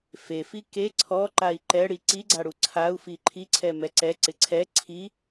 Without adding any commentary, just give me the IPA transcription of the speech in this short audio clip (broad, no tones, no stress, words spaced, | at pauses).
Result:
fefi ke ǀʰɔ ǃai̯ǃɛɽi ǀiɡ͡ǀaɽu ǀʰau̯fi ǃʰiǀʰɛ mɛǀɛǀɪ ǀʰɛ ǀʰi